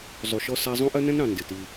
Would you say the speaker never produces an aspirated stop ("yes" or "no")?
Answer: yes